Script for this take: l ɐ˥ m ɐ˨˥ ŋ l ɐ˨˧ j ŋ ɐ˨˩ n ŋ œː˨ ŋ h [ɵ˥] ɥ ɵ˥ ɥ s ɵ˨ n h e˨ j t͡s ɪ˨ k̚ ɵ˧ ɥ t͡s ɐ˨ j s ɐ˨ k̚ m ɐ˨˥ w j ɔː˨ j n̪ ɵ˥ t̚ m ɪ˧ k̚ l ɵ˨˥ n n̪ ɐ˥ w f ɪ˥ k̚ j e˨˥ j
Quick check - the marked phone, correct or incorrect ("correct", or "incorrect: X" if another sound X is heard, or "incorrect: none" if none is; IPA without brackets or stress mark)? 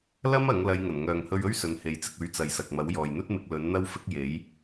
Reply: incorrect: ɵ˧